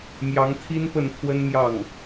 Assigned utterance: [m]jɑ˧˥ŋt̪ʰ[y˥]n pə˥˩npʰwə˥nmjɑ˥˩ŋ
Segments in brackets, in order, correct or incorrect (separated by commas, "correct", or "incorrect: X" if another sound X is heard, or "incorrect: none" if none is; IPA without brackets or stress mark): correct, incorrect: i˥